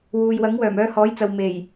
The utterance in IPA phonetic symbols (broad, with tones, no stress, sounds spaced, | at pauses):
w uː˨ j w ɐ˨˥ ŋ w œː˨˩ m œː˧ h ɔː˨˥ j t͡s ɐ˨ w m e˨˩ j